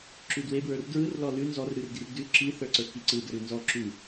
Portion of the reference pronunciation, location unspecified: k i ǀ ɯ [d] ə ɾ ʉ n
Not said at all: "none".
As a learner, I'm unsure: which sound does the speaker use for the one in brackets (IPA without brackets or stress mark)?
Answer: d